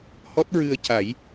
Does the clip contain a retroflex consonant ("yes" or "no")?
no